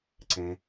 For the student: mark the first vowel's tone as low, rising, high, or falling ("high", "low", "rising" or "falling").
low